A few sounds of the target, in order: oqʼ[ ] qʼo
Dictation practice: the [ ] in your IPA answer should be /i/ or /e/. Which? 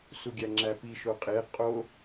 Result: e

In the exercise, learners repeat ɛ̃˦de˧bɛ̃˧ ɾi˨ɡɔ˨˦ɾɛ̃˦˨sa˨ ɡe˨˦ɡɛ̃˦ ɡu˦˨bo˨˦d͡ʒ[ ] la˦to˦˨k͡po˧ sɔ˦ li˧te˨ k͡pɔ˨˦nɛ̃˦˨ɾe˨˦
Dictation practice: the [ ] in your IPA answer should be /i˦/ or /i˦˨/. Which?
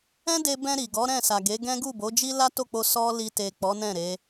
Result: i˦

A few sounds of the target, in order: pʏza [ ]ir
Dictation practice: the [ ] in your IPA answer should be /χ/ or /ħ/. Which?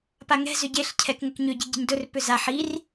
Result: ħ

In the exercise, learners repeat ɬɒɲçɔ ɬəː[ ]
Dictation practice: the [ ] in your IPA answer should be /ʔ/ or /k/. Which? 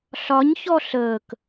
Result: k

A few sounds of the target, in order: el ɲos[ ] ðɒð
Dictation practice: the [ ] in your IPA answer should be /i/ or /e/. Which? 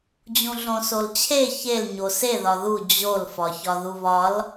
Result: e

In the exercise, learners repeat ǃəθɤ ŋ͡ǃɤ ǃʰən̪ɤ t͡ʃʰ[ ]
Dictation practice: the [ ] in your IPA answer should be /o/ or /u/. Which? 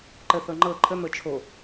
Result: o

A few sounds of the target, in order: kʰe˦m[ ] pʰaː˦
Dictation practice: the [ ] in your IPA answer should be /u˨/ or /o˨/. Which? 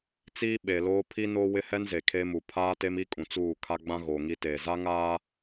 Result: u˨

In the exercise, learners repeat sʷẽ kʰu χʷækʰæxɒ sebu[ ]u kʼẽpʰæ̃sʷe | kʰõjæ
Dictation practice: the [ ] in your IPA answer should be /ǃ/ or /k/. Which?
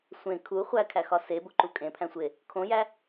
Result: ǃ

